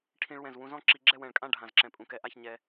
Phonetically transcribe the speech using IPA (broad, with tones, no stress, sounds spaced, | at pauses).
ʈʰ ĩ˧ ɭ w ɛ̃˧˩ z w ũ˧ z ɔ̃˥ ǁ i˧ ɡ͡ǁ ɛ˥˧ w ɛ̃˧˩ ɭ kʼ ã˥˧ ɖʱ ã˧˩ z ǁ ɛ̃˧˩ pʼ ũ˧˩ k ɛ˧ ʔ a˥˧ ç ɲ ɛ˧